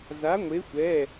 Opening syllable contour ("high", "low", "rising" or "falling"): rising